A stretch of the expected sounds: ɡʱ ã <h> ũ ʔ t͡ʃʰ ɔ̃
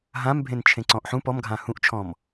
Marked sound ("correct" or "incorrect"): correct